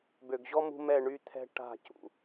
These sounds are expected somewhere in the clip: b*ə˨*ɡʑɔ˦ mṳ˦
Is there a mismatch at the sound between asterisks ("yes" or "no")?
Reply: yes